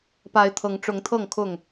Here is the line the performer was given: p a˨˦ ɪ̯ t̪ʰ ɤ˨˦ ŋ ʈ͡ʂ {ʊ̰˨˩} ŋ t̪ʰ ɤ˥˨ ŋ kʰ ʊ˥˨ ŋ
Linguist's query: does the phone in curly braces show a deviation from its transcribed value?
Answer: yes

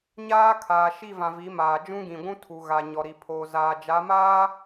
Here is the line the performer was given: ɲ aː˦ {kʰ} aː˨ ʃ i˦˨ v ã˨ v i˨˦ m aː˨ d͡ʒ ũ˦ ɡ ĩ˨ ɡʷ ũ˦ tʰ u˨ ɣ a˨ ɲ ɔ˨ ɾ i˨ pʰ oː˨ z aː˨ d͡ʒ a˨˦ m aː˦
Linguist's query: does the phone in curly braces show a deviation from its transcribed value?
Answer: no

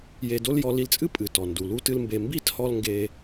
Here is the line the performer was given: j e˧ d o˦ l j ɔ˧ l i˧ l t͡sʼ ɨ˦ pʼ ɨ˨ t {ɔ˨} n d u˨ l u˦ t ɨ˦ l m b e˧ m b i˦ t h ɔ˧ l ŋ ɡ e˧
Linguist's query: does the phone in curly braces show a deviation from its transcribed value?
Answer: no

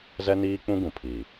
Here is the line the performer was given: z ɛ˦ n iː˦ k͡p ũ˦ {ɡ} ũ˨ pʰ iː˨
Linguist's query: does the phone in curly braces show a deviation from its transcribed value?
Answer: no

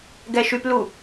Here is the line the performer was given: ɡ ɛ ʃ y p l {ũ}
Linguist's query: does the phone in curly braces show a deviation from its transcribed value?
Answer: yes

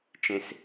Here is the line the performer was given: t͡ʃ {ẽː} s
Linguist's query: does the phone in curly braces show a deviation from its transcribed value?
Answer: yes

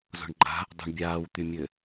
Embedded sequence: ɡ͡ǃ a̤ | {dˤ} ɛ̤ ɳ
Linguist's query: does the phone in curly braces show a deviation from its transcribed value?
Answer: no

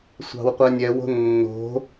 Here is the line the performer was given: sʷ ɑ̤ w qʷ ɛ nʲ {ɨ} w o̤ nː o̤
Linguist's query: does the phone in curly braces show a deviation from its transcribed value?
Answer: yes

